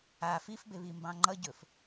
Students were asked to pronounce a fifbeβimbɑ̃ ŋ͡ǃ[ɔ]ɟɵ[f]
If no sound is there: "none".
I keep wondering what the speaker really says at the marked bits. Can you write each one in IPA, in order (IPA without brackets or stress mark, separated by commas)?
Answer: ʌ, f